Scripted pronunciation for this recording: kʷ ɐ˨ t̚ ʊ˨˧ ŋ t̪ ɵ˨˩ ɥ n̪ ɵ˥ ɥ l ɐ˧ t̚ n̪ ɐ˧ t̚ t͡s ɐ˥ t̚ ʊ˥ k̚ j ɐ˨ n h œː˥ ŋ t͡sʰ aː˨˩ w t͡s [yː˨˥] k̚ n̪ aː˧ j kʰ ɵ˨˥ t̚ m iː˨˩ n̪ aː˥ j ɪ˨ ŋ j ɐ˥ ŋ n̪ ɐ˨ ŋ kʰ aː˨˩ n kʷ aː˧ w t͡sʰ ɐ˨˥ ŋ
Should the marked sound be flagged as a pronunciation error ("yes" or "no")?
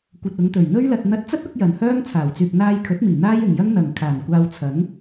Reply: yes